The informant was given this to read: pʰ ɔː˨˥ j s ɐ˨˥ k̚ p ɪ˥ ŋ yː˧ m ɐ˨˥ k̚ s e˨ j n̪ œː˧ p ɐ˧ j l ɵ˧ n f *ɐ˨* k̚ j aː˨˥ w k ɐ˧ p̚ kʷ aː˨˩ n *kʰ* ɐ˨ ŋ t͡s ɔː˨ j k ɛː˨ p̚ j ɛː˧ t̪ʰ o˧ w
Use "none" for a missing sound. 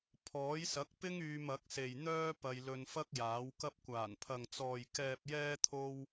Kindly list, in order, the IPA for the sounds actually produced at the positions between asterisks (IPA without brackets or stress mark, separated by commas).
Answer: ɐ˥, pʰ